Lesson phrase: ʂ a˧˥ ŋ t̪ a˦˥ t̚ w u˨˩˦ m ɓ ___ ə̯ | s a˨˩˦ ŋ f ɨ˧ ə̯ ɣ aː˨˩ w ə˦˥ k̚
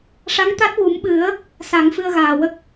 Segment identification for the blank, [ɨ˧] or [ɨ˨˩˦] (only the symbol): ɨ˨˩˦